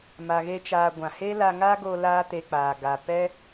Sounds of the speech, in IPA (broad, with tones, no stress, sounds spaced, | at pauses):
m a˧ ɣ e˦ t͡ʃ aː˧ ɡʷ ã˨ h e˦ l a˧ ŋ aː˦ ɡ o˧ l aː˦ t e˧ k͡p aː˨ ɡ a˨ p ɛ˦